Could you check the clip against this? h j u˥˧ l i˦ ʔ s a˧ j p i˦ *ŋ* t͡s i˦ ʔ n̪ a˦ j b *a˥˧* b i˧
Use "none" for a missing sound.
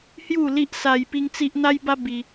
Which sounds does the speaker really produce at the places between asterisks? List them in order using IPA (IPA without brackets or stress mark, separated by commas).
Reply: ŋ, a˦